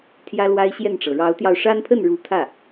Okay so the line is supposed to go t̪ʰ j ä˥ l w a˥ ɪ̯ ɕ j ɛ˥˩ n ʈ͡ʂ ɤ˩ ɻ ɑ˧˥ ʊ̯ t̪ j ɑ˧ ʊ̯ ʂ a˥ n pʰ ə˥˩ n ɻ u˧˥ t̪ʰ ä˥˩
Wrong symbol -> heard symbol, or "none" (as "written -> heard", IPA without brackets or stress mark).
none